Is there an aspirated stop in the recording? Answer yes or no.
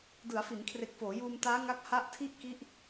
yes